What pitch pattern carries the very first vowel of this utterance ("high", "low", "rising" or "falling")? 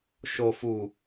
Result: low